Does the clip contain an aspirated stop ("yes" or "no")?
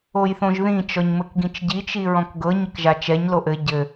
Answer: no